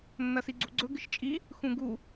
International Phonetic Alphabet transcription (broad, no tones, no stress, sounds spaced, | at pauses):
nː ɐ s i ɡ͡ǀ ṳ ɡ͡ǀ ɵ ɡ ɨ ʃ t͡ʃʼ i | x ũ ɡ u